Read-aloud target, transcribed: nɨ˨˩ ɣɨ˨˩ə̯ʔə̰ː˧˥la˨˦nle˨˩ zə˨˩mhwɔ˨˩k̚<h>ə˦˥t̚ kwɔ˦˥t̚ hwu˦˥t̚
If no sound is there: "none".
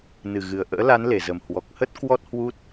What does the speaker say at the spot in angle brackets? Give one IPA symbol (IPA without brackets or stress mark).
h